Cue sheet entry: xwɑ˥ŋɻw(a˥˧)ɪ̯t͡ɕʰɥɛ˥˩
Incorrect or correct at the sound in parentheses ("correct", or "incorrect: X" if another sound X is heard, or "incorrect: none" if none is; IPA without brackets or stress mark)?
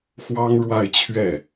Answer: correct